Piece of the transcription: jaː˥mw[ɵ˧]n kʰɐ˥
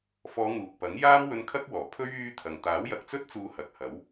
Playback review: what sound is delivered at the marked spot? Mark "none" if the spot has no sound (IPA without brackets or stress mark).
ɵ˧